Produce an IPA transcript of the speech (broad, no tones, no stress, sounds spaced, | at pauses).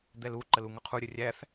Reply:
d̪ ɛ l u ǃ ə l u ŋ ʊ qʰ u ɾʲ ə rʲ æ θ